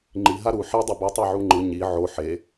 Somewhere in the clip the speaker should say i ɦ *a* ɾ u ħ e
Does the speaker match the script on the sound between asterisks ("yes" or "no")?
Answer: yes